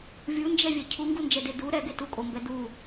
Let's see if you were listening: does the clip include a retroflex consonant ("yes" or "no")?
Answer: no